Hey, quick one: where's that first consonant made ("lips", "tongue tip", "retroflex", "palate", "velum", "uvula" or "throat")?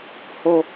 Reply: throat